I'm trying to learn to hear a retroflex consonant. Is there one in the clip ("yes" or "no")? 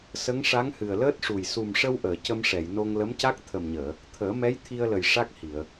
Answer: yes